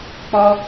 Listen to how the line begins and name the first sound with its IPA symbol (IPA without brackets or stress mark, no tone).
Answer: k͡p